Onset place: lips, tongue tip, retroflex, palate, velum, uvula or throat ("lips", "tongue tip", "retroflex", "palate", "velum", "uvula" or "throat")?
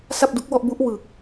tongue tip